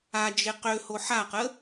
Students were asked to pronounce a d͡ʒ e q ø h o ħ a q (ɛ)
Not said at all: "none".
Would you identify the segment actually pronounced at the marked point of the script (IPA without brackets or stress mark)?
ə